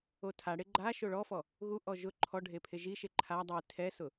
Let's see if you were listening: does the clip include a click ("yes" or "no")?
yes